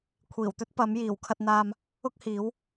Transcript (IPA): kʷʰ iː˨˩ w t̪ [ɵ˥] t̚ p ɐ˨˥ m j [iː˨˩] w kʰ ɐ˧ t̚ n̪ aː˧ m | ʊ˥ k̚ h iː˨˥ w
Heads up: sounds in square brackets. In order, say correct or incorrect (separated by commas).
correct, correct